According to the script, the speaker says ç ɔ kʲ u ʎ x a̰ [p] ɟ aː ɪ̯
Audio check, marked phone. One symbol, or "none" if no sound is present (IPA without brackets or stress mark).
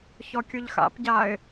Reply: p